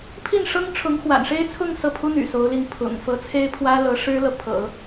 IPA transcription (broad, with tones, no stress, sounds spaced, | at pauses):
pʰ i˥˩ n ʂ ɤ˥ ŋ ʈ͡ʂʰ ʊ˧˥ ŋ x w a̰˨˩ n ʂ e˥ ɪ̯ t͡sʰ ʊ˥˧ ŋ s ɤ˥˩ pʰ u˥ n̪ y̰˨˩ s o˧˥ ʊ̯ l i˥˩ ŋ pʰ ʊ̰˨˩ ŋ f ɤ˧˥ t͡sʰ e˥ ɪ̯ pʰ w ä˥ l ɤ˧˥ ʂ ɻ̩˥ l ɤ˨ pʰ ɤ̰˨˩˦